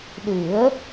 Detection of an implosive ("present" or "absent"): present